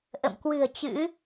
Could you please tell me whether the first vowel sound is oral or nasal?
oral